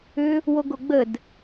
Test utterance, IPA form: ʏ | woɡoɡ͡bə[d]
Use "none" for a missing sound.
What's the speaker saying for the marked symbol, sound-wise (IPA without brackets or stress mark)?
d